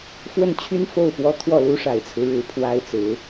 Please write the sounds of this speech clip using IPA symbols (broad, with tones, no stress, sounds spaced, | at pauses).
f w ə˥˩ n t͡ɕʰ y˥ n f o˥˩ ʊ̯ p w ɔ˥ t̪ʰ w ɔ˥˩ l u˥ ʂ a˨˩ ɪ̯ t͡sʰ ɹ̩˦ ɻ ɻ̩˨˩ pʰ w a˥ ɪ̯ t͡s ɹ̩˧˥